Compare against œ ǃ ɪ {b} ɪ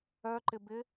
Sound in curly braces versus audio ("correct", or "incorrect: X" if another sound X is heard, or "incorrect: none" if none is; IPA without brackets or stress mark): correct